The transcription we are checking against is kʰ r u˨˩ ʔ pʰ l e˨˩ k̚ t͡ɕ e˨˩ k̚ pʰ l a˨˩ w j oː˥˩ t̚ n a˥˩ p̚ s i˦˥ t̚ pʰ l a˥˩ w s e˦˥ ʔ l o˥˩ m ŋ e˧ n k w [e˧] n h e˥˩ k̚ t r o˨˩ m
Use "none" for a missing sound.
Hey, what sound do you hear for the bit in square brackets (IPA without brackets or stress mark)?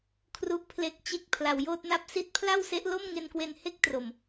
e˧